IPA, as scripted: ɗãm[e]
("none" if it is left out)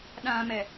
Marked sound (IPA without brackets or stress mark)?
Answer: ɛ